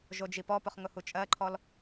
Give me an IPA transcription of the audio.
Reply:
ʒ o d͡ʒ i p ɔ p ʊ χ ŋ ʊ h u t͡ʃʼ ɜ ǃʰ ɔ l

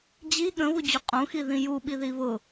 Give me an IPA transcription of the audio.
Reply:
d͡ʑ i ɠ ə̃ β u d͡ʑ u qʼ ũ x i ð ĩ j u ɓ i ð i β ʊ

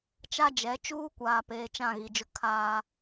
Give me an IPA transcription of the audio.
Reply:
t͡ʃ a˦ d͡ʒ ɛ˨˦ t͡ʃ uː˦ kʷ aː˨ p eː˨ t͡ʃ ã˦˨ ɣ i˨ d͡ʒ ʊ˦ kʰ aː˦

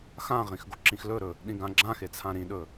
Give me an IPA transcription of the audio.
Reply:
x ã ʁ ĩ x ɡ o ǁ ĩ x l ɵ ɾ ɵ | ɗ ĩ ɡ ã ɡ͡ǁ ã x e t͡sʰ ã ɾ ĩ ɗ ɵ

